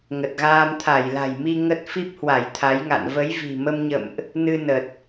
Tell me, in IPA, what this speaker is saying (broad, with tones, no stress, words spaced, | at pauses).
ŋə˨˩t̚ɣaː˧m t̪ʰa˧˩jla̤˨˩jmi˧ ŋə˦˥t̚ fi˦˥p̚hwa˧˩j t̪ʰa˨˦jŋa̰˧˨n və˨˦j vi̤˨˩ mə˧mɲə̰˧˨mʔ | nɨ˧ nə˨˩t̚